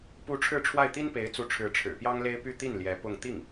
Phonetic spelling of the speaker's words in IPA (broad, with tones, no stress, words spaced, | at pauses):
pu˧˥ ʈ͡ʂʰɻ̩˥˧ʈ͡ʂʰwa˥˩ɪ̯ t̪i˥npe˧˥ɪ̯t͡su˧˥ʈ͡ʂʰɻ̩˧˥ ʈ͡ʂʰɻ̩˨˩pjɑ˥ŋle˥ɪ̯ py˥˧t̪i˥˩n ljɛ˧˥pʊ˥˧ŋ t̪i˥˩ŋ